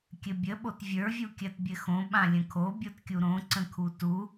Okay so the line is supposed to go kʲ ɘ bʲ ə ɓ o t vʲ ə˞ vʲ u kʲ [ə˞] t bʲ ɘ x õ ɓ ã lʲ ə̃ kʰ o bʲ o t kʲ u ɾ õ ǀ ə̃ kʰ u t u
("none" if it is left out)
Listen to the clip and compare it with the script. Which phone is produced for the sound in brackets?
ɜ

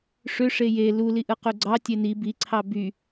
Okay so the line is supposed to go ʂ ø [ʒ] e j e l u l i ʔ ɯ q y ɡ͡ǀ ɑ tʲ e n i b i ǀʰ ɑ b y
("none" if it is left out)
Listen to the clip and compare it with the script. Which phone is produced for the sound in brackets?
ʂ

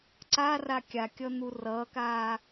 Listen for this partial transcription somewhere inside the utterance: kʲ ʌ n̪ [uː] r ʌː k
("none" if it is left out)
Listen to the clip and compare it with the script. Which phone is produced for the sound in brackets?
u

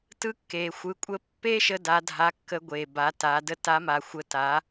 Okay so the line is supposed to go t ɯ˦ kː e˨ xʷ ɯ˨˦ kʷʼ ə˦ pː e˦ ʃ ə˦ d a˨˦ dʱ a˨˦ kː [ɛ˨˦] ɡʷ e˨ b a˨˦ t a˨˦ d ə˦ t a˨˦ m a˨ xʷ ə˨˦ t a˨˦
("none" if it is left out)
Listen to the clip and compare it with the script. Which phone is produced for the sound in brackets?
ə˨˦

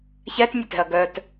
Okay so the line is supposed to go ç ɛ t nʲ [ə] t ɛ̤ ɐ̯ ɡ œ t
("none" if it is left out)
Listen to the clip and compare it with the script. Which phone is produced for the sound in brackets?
ə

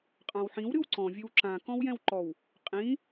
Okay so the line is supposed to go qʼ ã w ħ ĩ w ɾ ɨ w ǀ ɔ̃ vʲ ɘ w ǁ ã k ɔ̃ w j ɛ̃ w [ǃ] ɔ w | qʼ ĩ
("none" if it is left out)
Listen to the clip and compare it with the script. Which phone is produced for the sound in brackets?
ǃ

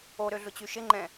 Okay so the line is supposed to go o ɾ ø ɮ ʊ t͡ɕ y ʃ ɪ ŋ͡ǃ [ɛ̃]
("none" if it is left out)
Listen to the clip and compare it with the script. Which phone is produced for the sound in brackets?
ɛ̃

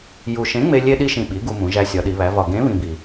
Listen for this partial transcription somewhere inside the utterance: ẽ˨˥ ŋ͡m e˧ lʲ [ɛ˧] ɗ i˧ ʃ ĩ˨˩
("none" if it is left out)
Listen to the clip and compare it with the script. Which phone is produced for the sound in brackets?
e˧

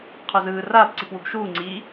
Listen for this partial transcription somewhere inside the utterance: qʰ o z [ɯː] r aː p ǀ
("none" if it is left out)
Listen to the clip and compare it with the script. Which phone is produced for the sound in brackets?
ɯː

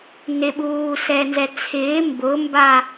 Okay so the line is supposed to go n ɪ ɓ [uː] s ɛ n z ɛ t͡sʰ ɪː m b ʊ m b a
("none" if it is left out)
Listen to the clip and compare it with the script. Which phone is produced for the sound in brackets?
uː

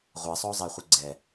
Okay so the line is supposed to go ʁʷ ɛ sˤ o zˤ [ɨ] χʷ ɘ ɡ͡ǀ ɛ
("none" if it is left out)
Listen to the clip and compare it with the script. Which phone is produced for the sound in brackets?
e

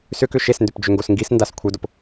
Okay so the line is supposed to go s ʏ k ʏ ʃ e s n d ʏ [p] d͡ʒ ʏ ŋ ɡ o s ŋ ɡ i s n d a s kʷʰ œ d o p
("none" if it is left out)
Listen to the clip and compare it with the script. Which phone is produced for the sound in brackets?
p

